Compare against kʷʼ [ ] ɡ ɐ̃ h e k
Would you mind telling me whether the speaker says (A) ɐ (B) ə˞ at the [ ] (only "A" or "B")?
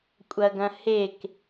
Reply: A